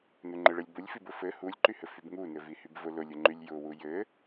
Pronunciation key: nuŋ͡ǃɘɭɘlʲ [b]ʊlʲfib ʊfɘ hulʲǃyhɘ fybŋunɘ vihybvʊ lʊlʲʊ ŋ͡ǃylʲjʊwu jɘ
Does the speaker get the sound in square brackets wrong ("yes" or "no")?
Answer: no